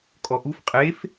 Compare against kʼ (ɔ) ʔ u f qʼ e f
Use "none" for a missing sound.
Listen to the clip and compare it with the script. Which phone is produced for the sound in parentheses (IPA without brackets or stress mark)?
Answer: ɔ